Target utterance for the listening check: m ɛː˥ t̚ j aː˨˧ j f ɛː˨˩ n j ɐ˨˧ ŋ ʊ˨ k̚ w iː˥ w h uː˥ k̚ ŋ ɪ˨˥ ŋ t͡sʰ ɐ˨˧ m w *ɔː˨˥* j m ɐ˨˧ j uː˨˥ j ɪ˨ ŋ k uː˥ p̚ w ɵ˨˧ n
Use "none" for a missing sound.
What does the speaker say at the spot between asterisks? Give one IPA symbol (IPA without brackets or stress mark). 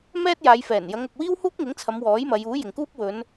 ɔː˨˥